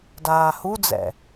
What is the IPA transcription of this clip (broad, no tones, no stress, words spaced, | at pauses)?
daːhud͡zɛ̰